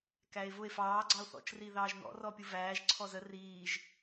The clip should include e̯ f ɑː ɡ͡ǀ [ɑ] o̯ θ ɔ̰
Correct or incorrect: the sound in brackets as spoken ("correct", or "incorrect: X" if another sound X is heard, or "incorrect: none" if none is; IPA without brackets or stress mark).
correct